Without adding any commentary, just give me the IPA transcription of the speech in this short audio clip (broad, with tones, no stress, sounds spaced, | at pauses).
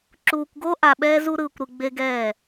ǁ uː˧ kʷ ɡ o˥ ʔ a˧ ɓ ɛː˥ z u˥ ɾ ɯː˧ kʷ ɾ ɯ˧ ɡ͡b e˧ ɡ ɛː˧˩